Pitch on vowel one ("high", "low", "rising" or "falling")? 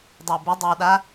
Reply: low